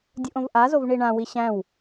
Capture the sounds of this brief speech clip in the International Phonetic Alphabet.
dʲ u ʔ õ v ʔ a z o v ɳ i ɳ ã w i ɕ æ̃ w

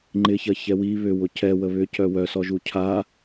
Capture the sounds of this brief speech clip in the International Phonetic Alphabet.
ŋ͡ǃ ɪ ç ɐ ç ɛ w i β ʏ w ʊ c ɛ w ə β ʏ c œ w œ s ɔ ʒ u cʰ a

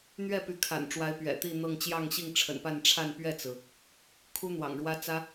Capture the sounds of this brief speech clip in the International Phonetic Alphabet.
n̪ ɥ ɛ˥˩ p y˧˥ kʰ a̰˨˩ n ʈ͡ʂ w a˧˥ ɪ̯ p ɥ ɛ̰˨˩ t̪ i˥˧ n̪ ɤ˥˧ ŋ t͡ɕ j ɑ˥˧ ŋ ɕ i˥˩ ŋ ʈ͡ʂʰ ə̰˨˩ n p a˥˧ n ʈ͡ʂʰ a˥˧ n p ɥ ɛ˥˩ t͡s ɹ̩˩ | kʰ u˥ n̪ w ɑ̰˨˩ ŋ ɻ w ä˥ t͡s ä˥

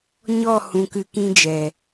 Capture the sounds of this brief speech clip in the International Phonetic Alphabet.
ɲ ɔ˦˨ h ũ˧ k ɨ˧ k ĩ˦ d͡ʒ ɛ˨

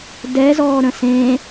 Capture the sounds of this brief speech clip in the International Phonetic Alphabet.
d ɛ z ɔː ɾ ə̃ s ẽ

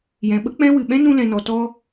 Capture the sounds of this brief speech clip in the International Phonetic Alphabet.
j ɛ̃˨ ɓ ə˦ k͡p ɛ̃˦ w ɨ˨ ɓ ɛ̃˦ n ũ˧ l ɛ̃˨ n ɔ˨ t ɔ˦

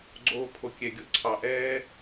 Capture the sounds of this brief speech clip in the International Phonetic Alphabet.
ɡ͡ǀ oː˧ pʰ o˨ kʲ ɛ˨ ɡʲ o˨ ǀʰ ɑ˨ ʔ ɛː˦

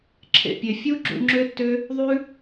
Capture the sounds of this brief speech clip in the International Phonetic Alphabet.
ǁʰ ḛ˨ pʲ e˨ fʲ u˦ ɡ͡ǁ ṵ˧ ŋ͡ǁ ø˦ tː ø˦ | ðˤ ʉ˦

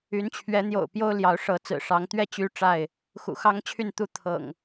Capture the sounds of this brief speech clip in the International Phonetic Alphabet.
y˨˦ n t͡ɕʰ ɥ ɛ˨˦ n̪ j o̰˨˩ ʊ̯ p j o˦ ʊ̯ l j ɑ˨˦ ʊ̯ ʂ ɤ˨˦ t͡s ɹ̩˨˩ ʂ ɑ˨˦ ŋ t̪ ɥ ɛ˥˨ t͡ɕ y˦ ʈ͡ʂ a˥˨ ɪ̯ | x ṵ˨˩ x ɑ˦ ŋ t͡ɕʰ y˥˨ n t̪ u˥˨ t̪ʰ ɤ̰˨˩ ŋ

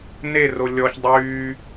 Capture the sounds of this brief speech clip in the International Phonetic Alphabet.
n e r o lʲ ɔ ç dˤ yː

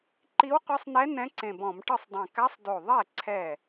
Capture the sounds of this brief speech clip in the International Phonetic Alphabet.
ǃ i˧˥ w qʷ e˧˥ sˤ n ɛ˧˥ n ɛ̃˧˥ ǀ ẽ˧˩ b ɔ̃˧˩˧ m ʈ ɯ˥˩ sˤ dˤ ẽ˧˩ k a˧˥ sˤ d o˧˩ ðˤ ɛ˥˩ ǀʰ ɛ˥˩

